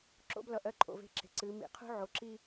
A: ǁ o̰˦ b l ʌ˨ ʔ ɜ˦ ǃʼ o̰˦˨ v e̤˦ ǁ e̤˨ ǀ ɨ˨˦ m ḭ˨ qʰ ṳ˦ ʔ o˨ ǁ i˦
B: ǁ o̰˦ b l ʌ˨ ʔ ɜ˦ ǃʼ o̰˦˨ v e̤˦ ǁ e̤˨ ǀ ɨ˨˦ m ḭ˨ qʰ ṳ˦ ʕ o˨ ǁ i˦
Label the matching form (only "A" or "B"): B